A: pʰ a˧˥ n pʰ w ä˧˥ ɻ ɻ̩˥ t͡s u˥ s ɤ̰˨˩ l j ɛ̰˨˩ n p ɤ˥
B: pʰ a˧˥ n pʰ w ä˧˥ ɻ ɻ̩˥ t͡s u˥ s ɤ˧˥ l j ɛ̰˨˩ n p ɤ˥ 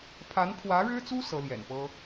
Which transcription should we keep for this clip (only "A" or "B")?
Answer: B